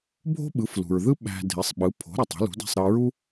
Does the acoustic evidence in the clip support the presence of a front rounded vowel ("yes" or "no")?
yes